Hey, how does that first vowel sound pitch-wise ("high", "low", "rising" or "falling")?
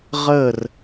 falling